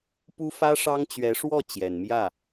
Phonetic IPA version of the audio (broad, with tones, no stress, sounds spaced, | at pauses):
p u˥ f ä˥ ʂ ɑ˥ ŋ t͡ɕ ɥ ɛ˧˥ ʂ w ɔ˥˩ t͡ɕ j ɛ˨˩ n m j ä˥˩